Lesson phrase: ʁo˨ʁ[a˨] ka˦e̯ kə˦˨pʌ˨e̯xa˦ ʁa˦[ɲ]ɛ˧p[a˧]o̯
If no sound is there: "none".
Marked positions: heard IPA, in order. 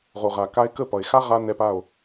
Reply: a˨, n, a˦˨

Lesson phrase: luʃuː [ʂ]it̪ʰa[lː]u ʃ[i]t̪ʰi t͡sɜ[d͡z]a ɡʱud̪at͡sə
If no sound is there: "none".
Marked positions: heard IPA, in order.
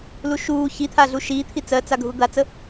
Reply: ç, ɮ, iː, t͡s

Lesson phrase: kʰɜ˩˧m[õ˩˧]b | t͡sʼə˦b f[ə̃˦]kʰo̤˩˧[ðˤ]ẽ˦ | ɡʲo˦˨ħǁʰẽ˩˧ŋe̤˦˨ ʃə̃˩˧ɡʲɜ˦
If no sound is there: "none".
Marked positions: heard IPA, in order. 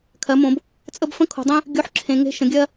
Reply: õ˩˧, ə̃˦, dˤ

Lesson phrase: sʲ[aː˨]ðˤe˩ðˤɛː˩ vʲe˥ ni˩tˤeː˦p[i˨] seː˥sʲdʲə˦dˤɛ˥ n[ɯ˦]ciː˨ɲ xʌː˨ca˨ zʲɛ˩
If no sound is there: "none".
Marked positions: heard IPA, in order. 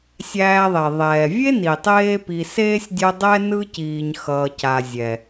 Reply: æː˨, i˨, ɯ˦

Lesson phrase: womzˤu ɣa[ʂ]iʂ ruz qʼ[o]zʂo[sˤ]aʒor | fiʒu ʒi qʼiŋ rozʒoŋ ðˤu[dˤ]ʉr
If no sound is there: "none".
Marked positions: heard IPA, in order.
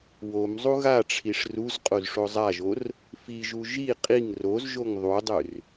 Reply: ʈ͡ʂʰ, o, zˤ, dˤ

